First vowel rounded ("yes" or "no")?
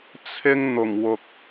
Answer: no